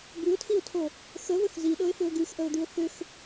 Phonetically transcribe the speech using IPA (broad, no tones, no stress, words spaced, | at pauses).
bʉʊ̯tʰiʊ̯tʰo | xəvəx ziɗɤɪ̯θʏʊ̯ ɡʉxʔəʊ̯d̪ʉʊ̯ θʏx